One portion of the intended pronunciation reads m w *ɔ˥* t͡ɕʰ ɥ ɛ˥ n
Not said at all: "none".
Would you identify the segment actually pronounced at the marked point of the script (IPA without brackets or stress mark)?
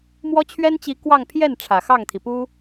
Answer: ɔ˥